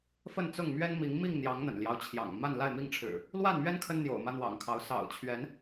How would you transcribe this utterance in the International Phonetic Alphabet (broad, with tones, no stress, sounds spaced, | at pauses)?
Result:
f ə˥˨ n t͡s ʊ˥˨ ŋ m ɥ ɛ˦ n m i˨˦ ŋ m i˥˨ ŋ n̪ j ɑ˨˦ ŋ n̪ ə̰˨˩ n l j ɑ˦ ʊ̯ t͡ɕʰ j ɑ̰˨˩ ŋ m a˥˨ n l a˥˨ ɪ̯ m i˥˨ ŋ ʈ͡ʂʰ ɻ̩˨˩ | l w a˥˨ n m ɥ ɛ˦ n kʰ ə˦ n n̪ j o̰˨˩ ʊ̯ m ä˦ n̪ w ɑ̰˨˩ ŋ kʰ ɑ˨˦ ʊ̯ s ɑ̰˨˩ ʊ̯ t͡ɕʰ ɥ ɛ˨˦ n